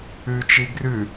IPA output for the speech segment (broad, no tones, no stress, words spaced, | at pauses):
ʉt͡ʃi ɡrʉ